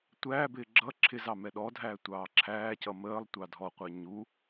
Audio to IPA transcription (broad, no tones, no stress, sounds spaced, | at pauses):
tʷ æː b ɪː ɡ͡ǁ ʌ ǁʰ ɪ z ɑ m ɛ ɗ ɔ dʱ æː tʷ ɑː ǁʰ æː c ʌ m əː lˠ tʷ ɑ dʱ ɔ qʷ ɛ ɲ u